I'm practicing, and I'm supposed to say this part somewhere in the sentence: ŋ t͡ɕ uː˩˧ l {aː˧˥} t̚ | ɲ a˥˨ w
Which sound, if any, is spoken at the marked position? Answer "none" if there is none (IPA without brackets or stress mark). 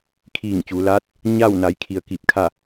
aː˧˥